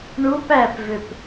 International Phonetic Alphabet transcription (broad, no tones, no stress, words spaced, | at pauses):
ɳup æpvøp